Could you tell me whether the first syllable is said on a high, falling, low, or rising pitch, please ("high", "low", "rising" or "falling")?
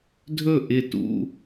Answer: falling